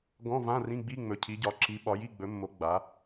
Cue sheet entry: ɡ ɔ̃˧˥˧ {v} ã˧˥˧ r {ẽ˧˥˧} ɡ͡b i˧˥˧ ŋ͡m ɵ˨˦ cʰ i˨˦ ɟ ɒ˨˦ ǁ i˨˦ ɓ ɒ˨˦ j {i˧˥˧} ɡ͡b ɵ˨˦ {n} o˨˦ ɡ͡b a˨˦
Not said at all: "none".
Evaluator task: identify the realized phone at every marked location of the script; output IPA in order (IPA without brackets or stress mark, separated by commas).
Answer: v, ĩ˧˥˧, i˧˥˧, mː